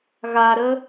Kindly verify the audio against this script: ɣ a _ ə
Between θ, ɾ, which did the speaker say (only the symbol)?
ɾ